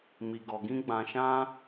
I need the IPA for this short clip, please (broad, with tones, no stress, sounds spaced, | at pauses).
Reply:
m i˨ ɡ ɔ˨ ɡ ĩ˧ ɡ͡b ã˨ ʃ ã˧